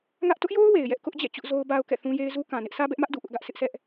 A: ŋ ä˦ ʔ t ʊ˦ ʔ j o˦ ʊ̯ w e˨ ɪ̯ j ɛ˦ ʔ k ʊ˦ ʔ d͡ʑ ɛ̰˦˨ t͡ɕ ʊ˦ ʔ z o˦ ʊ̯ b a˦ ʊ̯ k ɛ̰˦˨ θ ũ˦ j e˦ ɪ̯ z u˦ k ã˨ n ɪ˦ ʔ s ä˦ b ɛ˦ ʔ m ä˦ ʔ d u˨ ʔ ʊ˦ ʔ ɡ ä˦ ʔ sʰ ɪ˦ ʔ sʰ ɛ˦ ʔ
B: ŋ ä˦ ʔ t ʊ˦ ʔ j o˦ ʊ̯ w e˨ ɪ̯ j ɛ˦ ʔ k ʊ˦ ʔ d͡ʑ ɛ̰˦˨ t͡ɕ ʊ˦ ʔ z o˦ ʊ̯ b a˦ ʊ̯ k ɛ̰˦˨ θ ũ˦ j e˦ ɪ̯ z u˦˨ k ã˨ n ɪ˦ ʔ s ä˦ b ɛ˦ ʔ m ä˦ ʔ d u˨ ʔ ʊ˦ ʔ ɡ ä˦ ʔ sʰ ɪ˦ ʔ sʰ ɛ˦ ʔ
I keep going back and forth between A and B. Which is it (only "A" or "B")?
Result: A